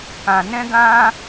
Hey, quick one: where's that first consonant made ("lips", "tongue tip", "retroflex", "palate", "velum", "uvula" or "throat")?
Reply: velum